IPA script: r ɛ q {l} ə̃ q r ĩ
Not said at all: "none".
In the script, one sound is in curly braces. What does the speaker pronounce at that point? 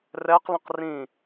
l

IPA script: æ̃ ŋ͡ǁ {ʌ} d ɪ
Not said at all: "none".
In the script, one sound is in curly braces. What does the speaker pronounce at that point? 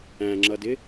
ʌ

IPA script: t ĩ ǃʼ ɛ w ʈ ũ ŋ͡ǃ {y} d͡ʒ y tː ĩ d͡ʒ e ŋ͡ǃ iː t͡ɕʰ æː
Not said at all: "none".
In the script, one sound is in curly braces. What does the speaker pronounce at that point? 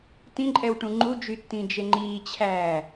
u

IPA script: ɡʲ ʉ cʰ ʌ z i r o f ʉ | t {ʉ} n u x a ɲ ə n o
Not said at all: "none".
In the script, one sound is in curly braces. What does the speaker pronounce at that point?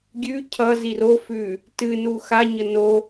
ɨ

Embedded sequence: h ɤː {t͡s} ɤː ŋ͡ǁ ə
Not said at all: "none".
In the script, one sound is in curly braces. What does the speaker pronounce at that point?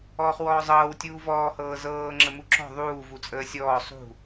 z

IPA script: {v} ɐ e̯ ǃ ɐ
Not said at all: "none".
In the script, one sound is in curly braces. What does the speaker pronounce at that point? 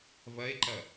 v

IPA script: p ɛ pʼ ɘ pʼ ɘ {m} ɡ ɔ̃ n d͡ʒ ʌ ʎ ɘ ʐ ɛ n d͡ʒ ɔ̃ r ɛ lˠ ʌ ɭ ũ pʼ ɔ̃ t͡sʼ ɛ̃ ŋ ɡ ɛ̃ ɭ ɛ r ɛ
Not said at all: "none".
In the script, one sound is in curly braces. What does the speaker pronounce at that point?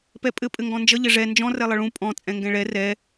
ŋ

